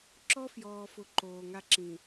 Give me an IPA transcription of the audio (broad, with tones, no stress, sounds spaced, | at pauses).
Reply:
ǁ ɔ˦ f j ɔː˨ f ʊ˨ ǃ oː˨ ŋ a˦ ǁ ĩ˨